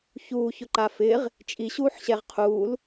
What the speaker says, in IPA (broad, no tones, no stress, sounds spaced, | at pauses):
ç uː ç ʊ ǃ a f ɪː ʁ | t͡ʃʼ i ɕ uː ħ ɕ ɛ ʁ qʰ uː l